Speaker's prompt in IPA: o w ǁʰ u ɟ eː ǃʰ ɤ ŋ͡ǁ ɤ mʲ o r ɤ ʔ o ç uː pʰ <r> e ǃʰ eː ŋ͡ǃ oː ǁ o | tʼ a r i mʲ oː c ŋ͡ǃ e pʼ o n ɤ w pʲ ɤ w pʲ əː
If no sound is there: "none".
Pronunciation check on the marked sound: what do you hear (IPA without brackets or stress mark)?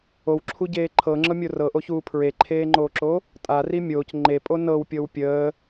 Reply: ɹ